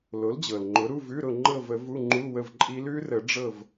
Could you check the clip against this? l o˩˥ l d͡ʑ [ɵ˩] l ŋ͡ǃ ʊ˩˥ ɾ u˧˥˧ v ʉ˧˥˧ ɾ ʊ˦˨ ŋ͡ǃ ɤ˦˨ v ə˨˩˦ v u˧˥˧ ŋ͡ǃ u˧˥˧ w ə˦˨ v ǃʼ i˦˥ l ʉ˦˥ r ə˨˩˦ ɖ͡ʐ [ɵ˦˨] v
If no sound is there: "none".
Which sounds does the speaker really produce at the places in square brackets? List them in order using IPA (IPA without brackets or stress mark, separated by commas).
ɤ˩, ɤ˦˨